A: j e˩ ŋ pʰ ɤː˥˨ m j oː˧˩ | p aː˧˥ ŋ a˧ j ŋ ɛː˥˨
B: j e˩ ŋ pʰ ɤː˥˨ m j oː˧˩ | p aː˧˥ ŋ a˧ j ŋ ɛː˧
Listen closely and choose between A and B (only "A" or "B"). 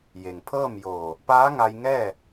A